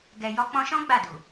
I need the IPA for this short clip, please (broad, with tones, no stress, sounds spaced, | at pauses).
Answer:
ɡ ɛ˨ j ɔ˧ k͡p ɔ̃˧ ʃ ɔ̃˦ ɡ͡b a˦˨ d u˨